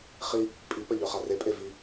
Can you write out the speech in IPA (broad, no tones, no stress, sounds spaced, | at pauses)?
χ i | pʼ i p ɐ ʎ œ χ a r e pʼ e v i